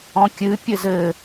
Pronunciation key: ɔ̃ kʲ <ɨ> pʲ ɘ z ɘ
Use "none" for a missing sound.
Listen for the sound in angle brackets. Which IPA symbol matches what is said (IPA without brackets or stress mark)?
ɨ